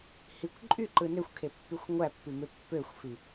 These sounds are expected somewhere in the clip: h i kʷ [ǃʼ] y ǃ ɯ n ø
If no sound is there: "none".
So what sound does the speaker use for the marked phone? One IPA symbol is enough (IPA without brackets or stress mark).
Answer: ǃʼ